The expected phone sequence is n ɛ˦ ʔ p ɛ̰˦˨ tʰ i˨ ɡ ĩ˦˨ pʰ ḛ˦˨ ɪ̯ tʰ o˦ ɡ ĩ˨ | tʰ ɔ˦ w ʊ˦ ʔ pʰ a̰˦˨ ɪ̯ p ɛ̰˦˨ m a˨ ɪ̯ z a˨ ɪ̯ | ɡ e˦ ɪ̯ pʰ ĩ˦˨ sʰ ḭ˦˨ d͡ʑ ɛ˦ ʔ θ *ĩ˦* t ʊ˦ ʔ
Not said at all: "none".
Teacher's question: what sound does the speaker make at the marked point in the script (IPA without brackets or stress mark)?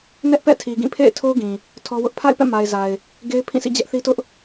i˦